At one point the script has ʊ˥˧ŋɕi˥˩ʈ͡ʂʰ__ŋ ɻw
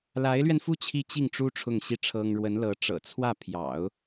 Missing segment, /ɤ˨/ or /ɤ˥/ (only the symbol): ɤ˥